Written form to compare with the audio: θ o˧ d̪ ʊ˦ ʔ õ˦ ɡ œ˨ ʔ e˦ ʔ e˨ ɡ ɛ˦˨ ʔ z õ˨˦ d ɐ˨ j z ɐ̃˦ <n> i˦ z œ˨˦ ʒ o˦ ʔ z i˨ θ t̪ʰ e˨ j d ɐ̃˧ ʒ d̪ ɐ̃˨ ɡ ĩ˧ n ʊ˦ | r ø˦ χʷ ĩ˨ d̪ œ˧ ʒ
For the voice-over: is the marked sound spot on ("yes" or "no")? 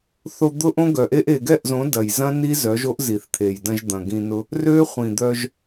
yes